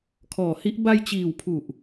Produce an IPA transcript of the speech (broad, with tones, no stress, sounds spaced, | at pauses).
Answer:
kʰ ɔː˨˩ h i˦˥ ʔ b a˧ j t͡ɕ iː˨˩ w pʰ u˨˩ ʔ